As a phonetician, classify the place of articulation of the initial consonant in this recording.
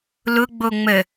alveolar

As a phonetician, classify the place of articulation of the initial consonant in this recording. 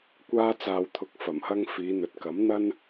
velar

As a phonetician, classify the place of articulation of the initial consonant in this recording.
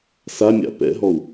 alveolar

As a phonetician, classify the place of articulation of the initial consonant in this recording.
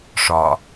retroflex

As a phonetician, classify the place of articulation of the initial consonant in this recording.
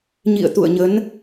palatal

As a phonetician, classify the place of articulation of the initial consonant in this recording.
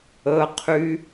uvular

